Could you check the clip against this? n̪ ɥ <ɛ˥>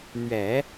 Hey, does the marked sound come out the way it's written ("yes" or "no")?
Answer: no